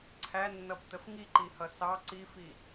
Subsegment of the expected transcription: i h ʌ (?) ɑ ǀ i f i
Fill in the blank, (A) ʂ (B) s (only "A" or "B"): B